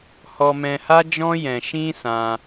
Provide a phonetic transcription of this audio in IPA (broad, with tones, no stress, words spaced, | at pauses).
hɔ˧mɛ̃˧ha˦d͡ʒɔ̃˦ jɛ̃˧ʃĩ˦sã˧